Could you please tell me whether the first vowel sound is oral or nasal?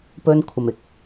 oral